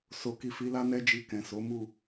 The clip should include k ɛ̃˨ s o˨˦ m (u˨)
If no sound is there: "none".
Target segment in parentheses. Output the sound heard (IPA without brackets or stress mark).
u˦˨